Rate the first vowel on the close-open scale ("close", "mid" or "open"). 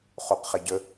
mid